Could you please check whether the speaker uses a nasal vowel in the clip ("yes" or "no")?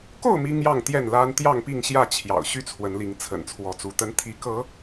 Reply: no